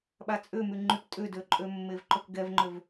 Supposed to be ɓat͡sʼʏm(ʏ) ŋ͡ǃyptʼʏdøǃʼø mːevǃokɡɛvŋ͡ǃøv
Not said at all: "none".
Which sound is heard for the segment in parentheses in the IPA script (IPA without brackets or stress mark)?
y